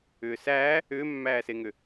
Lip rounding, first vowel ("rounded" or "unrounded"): rounded